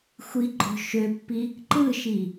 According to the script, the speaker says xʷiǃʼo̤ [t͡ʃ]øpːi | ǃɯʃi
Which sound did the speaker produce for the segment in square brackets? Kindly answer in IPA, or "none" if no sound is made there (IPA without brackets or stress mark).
ʃ